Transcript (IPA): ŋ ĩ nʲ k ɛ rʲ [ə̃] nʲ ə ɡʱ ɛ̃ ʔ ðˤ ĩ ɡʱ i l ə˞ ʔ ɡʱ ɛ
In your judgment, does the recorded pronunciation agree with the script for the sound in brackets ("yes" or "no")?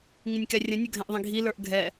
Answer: yes